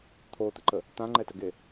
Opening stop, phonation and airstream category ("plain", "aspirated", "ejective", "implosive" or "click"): aspirated